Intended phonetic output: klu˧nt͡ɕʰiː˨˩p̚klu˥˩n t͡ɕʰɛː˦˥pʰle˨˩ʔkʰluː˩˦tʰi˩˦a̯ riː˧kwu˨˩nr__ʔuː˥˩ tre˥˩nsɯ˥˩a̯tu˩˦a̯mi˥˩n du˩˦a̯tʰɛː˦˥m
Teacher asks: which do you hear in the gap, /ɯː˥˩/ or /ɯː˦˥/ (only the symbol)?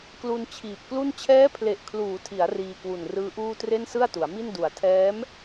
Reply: ɯː˦˥